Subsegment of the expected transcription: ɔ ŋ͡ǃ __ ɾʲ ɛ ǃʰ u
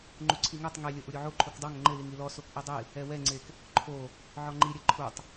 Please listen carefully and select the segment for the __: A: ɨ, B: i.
B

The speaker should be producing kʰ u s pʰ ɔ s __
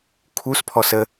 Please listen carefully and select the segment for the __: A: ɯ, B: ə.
B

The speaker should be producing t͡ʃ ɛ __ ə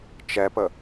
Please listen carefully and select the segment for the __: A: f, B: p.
B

